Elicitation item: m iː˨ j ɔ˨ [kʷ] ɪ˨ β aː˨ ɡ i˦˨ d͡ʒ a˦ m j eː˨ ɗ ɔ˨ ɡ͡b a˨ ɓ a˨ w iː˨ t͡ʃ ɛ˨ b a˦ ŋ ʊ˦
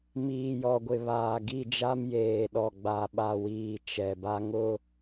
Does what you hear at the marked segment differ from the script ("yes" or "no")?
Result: yes